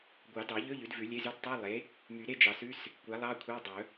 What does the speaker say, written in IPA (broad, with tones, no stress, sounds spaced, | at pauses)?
ɡʷ ɑ˨˩˦ d ɑ˨˩˦ ʎ ɵ˧˥˧ ʎ ʉ˩˥ d v ʉ˨˩˦ lʲ e˧˥˧ z ʉ˧˥˧ d tˤ ʉ˧˥˧ lˠ e˩˥ | m y˨˩˦ ɾ e˧˥˧ d͡ʒ ɑ˨˩˦ s ʉ˧˥˧ s | kʷ æ˩˥ lˠ ɑ˧˥˧ kʷʰ ɑ˧˥˧ dˤ ɵ˨˩˦